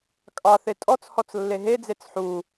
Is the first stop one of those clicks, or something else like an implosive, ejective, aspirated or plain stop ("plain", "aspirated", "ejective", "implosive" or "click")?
ejective